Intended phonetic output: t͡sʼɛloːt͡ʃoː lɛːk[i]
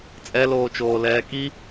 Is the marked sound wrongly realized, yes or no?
no